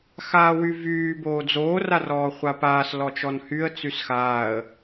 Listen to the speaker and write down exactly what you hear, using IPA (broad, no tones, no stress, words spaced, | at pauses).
xaːwyvyː boːd͡zoː rarɔːχʷapaːs lɔt͡ʃɔnhyə̯ t͡sysxaːə̯